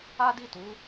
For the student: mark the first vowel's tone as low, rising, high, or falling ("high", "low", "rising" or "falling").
high